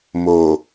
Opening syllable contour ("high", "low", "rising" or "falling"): low